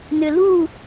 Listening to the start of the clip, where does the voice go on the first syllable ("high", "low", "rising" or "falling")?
low